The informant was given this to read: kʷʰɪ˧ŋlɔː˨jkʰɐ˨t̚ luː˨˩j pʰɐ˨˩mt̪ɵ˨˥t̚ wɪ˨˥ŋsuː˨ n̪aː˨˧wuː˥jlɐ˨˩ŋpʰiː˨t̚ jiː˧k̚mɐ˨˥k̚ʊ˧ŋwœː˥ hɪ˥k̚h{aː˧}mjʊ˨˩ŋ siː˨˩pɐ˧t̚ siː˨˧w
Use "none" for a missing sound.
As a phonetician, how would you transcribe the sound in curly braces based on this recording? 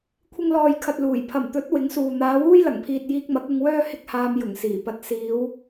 aː˧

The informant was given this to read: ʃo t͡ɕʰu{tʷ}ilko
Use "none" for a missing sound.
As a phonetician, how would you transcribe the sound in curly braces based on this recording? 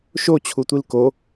tʷ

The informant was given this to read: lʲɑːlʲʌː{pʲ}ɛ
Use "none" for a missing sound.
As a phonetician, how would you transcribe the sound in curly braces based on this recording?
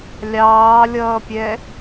pʲ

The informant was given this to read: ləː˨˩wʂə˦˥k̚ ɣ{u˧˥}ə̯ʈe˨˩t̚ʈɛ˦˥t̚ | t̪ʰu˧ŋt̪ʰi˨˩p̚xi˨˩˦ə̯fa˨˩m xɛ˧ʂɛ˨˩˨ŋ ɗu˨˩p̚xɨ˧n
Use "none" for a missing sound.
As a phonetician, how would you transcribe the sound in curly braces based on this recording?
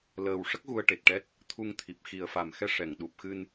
u˧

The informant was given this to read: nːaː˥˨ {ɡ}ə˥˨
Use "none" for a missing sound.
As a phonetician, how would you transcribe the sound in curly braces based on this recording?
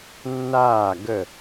ɡ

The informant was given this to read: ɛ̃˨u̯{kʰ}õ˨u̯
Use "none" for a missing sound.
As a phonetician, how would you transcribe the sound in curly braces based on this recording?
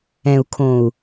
kʰ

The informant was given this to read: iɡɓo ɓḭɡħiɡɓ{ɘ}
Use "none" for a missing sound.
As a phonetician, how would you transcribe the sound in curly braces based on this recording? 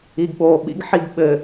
ɘ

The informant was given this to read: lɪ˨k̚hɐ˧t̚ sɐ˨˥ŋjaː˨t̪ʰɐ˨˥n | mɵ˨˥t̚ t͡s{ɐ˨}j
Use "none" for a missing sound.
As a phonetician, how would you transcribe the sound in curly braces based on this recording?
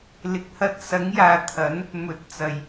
ɐ˨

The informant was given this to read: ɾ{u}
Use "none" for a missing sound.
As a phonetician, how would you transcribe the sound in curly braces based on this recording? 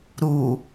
u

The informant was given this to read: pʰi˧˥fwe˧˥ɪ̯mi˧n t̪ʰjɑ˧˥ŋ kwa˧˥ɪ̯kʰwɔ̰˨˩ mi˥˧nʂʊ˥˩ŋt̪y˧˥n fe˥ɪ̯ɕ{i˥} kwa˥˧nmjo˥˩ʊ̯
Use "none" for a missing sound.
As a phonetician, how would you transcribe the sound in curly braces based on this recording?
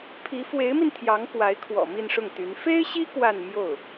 i˥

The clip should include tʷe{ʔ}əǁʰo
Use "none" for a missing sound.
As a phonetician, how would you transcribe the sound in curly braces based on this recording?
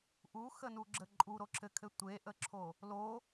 ʔ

